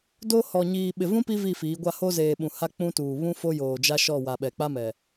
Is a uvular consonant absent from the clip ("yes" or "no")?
yes